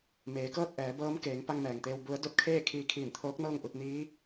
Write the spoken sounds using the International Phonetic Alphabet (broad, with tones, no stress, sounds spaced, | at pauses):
m eː˩˧ k ɤː˥˨ t̚ ʔ ɛː˩˧ b ɤː˧˥ m k eː˩˧ ŋ p a˧ ŋ m ɛː˩ ŋ t̪ eː˧ w b u˧˥ ə̯ d o˧˥ t̚ kʰ eː˥˨ kʰ iː˧ kʰ iː˧˩ n t̪ʰ oː˧˥ k̚ n ɤː˥˨ ŋ ʔ u˧ t̚ n iː˧˥